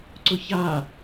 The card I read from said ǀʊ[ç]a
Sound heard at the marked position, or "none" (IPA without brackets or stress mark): ç